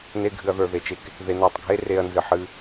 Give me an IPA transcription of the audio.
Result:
n e˦ ɡʱ ɨ˧ ɐ̯ ð ə˞˧ ð e˨ t͡ʃ e˧ k | ð e˧ n a˦˨ tˤ ɡʱ e˦ r e˧ ɐ̯ n z ɨ˨ ħ ɨ˧

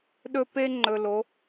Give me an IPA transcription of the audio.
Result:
ɗ ɵ˦ p e˦ ŋ͡ǃ ɵ˨ l o˨˦

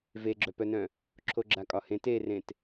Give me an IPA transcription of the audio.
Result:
v e ɡ͡ǁ œ p œ n œ̃ | ǁʰ o ɡ͡ǁ a kʼ ɒ h ẽ t e r ẽ t

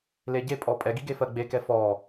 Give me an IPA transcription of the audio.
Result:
l e ɟ e pʼ ɔ pʼ ɛ ɡ i ɡ e f ɜ ɡ͡b e k ɛ f ɔ

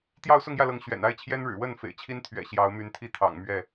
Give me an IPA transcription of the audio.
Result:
t̪ j ɑ˥˨ ʊ̯ s ʊ˥˨ ŋ j ä˥˨ l ɤ˨˦ ŋ ɕ ɥ ɛ̰˨˩ n a˥˨ ɪ̯ t͡ɕʰ j ɛ˦ n ɻ ɻ̩˨˩ w ə˥˨ n f ḛ˨˩ ɪ̯ t͡ɕʰ i˦ n t̪ʰ ɥ ɛ̰˨˩ ɕ j ɑ˨˦ ʊ̯ m y˨˦ n t̪ʰ i˥˨ t̪ʰ ɑ̰˨˩ ŋ m ɥ ɛ˥˨

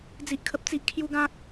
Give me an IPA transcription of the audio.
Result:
d͡z i˦ ʔ kʰ ə˦ p̚ t͡s i˦ ʔ kʰ j u˦ ɡ ã˦ k̚

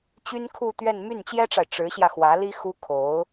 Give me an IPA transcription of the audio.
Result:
t͡ɕ y˥ n kʰ u˥˧ t̪ ɥ ɛ˥˧ n m y˥˩ n t͡ɕ j ɛ˥ ʈ͡ʂ a˨ ɪ̯ ʈ͡ʂ ɻ̩˧˥ ɕ j ä˧ x w ä˧˥ l i˥ x u˥ kʰ o˧˥ ʊ̯

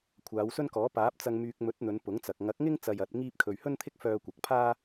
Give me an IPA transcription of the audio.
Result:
kʷʰ aː˨˧ w s ɵ˥ n k ɔː˨˥ p aː˨˥ p̚ t͡s ɐ˧ ŋ m yː˧ k̚ m ɵ˨˥ t̚ n̪ ɵ˨˧ n p ʊ˨˥ ŋ t͡s ɐ˨ k̚ ŋ ɐ˨˥ k̚ ŋ ɪ˥ ŋ t͡s ɐ˧ j ɐ˨˥ t̚ ŋ iː˥ p̚ kʰ ɵ˧ ɥ h ɵ˥ n t̪ʰ ɪ˥ k̚ f œː˧ kʷ ɐ˨ k̚ pʰ aː˥

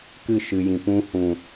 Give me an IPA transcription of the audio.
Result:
k ɨ˦˨ ʃ ɨ˨ j ĩ˨ p ũ˧ h ũ˨

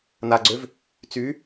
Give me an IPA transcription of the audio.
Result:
n a ɡ͡ǀ ø v | t͡s y

